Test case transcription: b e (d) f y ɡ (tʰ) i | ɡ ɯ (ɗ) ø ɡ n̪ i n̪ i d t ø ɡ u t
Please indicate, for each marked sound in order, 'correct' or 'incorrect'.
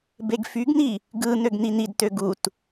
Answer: incorrect, incorrect, incorrect

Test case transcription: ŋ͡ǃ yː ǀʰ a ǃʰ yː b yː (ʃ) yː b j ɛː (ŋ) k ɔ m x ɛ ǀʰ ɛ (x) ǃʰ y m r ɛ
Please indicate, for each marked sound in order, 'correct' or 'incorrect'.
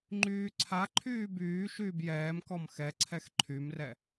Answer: correct, incorrect, correct

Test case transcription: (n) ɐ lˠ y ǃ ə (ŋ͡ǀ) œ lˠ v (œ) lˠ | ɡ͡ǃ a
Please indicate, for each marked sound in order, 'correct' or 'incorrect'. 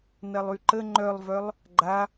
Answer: correct, incorrect, correct

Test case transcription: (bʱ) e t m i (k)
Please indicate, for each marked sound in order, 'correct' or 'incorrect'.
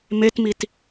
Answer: incorrect, incorrect

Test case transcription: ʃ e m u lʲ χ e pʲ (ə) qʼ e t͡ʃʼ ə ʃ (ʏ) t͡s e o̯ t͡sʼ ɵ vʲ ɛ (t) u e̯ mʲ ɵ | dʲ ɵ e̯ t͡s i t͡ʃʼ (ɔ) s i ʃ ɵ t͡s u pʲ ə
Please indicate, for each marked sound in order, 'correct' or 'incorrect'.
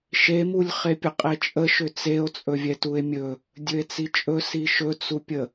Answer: correct, correct, correct, incorrect

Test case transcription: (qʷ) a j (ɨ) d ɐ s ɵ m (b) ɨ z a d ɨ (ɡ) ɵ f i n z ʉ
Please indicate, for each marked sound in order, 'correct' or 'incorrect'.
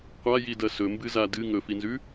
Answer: correct, incorrect, correct, incorrect

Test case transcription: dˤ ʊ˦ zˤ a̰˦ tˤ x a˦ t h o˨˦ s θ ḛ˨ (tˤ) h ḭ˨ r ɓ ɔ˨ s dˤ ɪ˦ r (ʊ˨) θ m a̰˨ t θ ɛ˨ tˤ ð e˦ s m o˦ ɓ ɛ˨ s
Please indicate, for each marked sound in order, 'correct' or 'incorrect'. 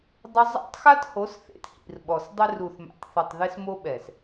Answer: incorrect, incorrect

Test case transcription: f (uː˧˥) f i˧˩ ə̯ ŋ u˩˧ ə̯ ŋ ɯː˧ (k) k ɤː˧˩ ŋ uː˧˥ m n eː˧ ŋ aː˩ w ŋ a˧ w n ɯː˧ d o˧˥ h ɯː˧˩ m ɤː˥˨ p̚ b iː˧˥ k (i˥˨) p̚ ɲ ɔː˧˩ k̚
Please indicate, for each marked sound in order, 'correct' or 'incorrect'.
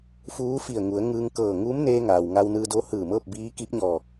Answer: correct, incorrect, incorrect

